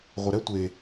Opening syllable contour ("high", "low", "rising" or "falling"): low